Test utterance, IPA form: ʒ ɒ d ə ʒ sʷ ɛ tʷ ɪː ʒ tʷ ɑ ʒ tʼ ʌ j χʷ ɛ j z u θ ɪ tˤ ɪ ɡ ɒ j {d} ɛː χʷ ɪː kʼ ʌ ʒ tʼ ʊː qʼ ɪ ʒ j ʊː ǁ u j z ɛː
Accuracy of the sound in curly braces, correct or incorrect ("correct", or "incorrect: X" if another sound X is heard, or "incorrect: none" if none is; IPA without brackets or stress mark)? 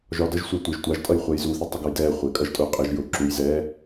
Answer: correct